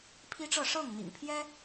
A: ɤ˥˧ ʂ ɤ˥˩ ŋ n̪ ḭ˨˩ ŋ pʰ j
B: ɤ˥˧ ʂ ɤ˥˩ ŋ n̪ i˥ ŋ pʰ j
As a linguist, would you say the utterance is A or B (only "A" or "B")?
A